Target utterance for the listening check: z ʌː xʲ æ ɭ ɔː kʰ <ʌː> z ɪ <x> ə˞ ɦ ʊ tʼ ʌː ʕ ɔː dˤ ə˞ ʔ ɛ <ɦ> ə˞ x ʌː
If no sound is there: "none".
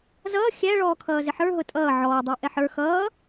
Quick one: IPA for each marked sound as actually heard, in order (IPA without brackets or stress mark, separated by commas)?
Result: ʌː, ħ, ħ